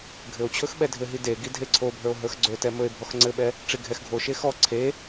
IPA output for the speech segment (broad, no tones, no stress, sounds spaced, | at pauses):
ɡʱ ɘ o̯ t͡ɕʰ ɵ x ɓ ɛ dʱ ɘ ɦ i d e ɡ i dʱ e ǀʰ o bʱ ə˞ o̯ ɦ ə˞ x ɡ͡ǀ ɵ t ɛ m ɵ e̯ bʱ ɔ x ŋ͡ǀ ɘ ɓ ɛ | ʈ͡ʂ i ɡʱ ɛ x ɡʱ o ʃ e x ɔ ǀʰ e